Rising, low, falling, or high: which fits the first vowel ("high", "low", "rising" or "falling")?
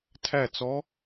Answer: falling